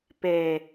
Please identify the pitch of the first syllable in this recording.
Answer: low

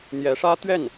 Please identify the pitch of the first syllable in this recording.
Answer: rising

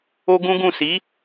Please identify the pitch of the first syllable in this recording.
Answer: high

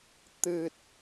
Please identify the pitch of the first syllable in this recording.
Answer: low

